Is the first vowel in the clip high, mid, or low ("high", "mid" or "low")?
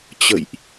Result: mid